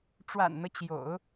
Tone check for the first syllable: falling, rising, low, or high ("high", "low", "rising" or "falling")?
low